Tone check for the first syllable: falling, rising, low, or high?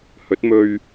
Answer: rising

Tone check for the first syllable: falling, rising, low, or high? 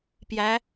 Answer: rising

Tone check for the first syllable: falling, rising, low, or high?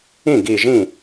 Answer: falling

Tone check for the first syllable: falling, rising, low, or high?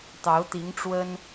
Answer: rising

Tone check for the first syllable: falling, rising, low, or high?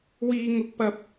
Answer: high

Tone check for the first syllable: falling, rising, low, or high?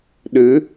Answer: rising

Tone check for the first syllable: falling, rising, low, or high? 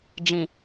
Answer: low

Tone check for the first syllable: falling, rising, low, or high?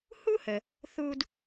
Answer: high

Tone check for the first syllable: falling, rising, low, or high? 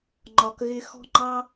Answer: low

